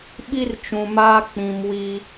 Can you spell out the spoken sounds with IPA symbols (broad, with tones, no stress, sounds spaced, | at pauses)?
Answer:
ɓ i˦ r t͡ʃ ũ˨ m aː˦ k͡p ĩ˨ m w i˦